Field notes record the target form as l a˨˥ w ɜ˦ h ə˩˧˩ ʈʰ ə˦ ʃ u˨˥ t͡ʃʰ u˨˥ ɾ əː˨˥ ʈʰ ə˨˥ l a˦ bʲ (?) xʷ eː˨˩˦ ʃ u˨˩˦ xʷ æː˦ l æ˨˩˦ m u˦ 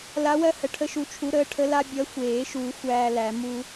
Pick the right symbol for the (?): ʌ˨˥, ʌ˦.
ʌ˨˥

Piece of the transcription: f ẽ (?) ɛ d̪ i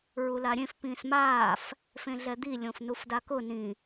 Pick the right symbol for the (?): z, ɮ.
ɮ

